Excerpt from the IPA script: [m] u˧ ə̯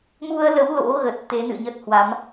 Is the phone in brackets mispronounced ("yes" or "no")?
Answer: no